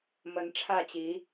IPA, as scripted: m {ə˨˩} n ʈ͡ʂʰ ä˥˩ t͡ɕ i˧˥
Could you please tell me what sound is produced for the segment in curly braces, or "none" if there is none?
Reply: ə˧˥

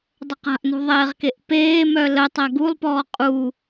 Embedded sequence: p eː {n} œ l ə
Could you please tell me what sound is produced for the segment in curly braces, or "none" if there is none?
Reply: m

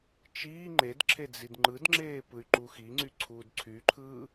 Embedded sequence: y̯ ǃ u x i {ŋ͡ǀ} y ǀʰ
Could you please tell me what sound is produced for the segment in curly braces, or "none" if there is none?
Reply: ŋ͡ǀ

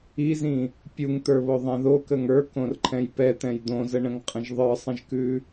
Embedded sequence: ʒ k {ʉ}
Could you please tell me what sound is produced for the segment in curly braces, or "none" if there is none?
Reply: ʉ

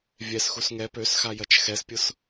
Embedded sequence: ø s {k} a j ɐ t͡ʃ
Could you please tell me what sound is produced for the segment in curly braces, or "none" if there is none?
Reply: x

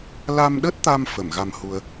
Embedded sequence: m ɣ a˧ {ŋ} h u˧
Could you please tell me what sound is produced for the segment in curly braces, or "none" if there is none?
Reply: m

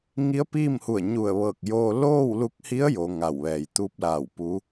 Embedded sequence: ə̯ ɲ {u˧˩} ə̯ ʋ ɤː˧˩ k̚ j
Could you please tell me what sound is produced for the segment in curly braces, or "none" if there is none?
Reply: u˧˩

